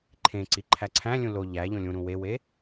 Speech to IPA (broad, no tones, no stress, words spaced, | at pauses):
ǃʰẽ ǀiǃʰæǀʰæ̃lʲũ lo ʎæ ʎõlʲũɾũ wewe